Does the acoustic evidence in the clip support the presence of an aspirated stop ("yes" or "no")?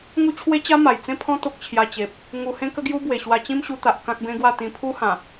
yes